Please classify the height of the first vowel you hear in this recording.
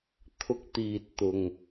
high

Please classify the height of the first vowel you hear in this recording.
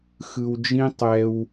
high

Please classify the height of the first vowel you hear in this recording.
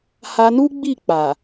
low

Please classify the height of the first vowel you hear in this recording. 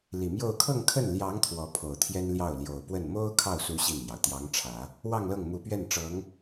high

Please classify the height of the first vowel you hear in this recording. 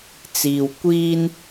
high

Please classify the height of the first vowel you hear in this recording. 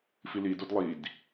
high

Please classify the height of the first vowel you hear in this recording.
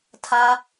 low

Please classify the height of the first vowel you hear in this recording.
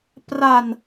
low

